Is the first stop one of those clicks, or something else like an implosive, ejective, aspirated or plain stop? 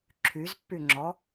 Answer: click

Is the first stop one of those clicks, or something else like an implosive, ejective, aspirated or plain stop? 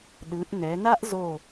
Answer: implosive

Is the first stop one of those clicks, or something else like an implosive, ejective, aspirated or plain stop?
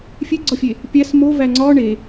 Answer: click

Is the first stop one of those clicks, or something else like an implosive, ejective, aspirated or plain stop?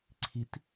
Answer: click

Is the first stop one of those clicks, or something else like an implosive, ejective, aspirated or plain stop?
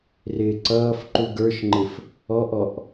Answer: click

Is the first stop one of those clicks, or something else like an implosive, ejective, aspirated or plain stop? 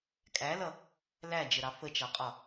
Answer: ejective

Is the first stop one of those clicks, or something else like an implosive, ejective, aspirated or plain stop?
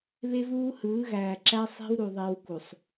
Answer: click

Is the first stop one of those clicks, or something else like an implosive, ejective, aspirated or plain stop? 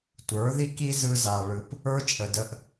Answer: plain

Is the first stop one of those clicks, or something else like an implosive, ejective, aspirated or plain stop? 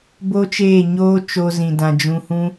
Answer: plain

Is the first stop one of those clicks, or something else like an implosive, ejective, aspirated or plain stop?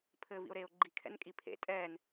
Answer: aspirated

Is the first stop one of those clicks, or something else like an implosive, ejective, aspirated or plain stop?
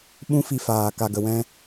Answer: implosive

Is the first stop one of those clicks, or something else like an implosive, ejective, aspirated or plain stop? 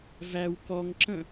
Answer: plain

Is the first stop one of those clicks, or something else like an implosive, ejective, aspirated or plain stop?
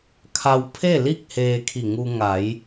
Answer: aspirated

